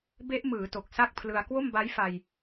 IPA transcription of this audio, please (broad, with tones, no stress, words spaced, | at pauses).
be˦˥ʔmɯː˩˦ to˨˩k̚sa˥˩k̚pʰlɯ˧a̯ kwo˥˩mba˦˥jfa˧j